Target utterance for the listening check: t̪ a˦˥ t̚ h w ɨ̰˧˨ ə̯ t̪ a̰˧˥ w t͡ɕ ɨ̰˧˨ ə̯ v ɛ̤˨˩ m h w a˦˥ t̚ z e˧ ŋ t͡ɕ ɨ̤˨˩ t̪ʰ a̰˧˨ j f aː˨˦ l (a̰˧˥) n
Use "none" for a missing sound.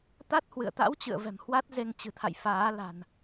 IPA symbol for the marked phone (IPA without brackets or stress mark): a̤˨˩